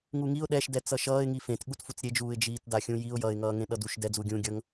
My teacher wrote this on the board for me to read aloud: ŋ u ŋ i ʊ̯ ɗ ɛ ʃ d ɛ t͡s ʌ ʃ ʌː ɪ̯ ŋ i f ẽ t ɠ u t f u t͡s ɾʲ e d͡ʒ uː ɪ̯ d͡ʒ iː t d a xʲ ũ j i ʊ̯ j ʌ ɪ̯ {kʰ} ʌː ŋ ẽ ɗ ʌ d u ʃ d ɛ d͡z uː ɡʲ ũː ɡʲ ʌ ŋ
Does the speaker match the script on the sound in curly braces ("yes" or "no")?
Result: no